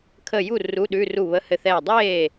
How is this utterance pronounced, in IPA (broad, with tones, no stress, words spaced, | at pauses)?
kʰə˥˩ ju˥˩ ru˧˥˧ɗʉ˧˥˧ru˥˩ βə˧˥˧hɘ˥˩θɛː˥˩ dˤeː˥˩